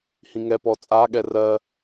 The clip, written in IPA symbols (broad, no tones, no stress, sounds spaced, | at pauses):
h ĩ ŋ ɛ p ɔ t͡sʼ a ɠ ɛ r ɜ